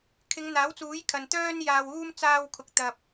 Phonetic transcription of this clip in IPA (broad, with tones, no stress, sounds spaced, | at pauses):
kʰ ɪ˨˧ ŋ n̪ aː˨˥ w t͡s uː˨˥ j kʰ ɐ˨ n t̪ œː˥ n j aː˧ w uː˥ m t͡s aː˧ w kʰ ʊ˨ k̚ t̪ ɐ˨ p̚